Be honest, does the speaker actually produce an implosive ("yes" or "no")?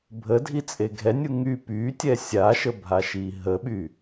yes